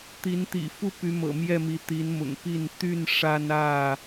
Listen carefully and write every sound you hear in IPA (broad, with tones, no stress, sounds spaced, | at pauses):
t̪ i˨˦ n t̪ ḭ˨˩ f u˥˨ p y˨˦ m ɤ̰˨˩ m j ɛ˥˨ m i˨˦ t̪ i˨˦ n m ʊ̰˨˩ ŋ p i˥˨ n t̪ y˥˨ n ʂ a˦ n ä˥˨